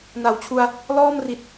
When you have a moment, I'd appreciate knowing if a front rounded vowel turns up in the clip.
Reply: no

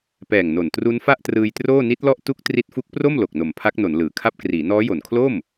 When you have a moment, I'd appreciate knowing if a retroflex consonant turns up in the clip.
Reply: no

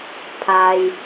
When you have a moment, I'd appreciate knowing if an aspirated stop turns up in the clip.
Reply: yes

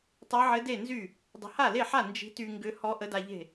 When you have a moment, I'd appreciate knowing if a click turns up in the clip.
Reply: no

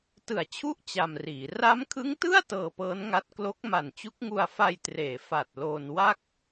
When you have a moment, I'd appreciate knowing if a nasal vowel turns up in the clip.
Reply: no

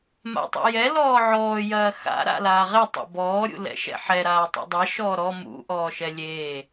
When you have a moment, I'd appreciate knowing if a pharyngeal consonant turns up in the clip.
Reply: yes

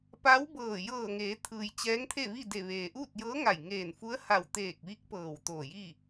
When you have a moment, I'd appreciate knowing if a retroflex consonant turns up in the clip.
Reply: no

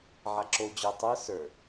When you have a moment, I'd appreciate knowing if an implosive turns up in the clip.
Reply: no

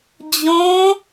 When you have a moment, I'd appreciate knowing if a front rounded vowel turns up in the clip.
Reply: no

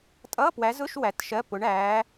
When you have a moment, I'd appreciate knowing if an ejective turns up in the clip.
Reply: yes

